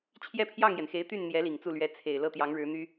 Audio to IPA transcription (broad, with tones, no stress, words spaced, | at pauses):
t͡ɕʰjɛ˥˧pʰjɑ˥˩ŋjɛ˩nxe˧˥ɪ̯ t̪y˥˩nn̪jɛ˧˥ li˨˩ŋt͡su˥˩lɥɛ˧˥ t͡sʰe˨˩ɪ̯ lɤ˥˩t̪jɑ˧˥ŋɻɻ̩˧˥n̪y˥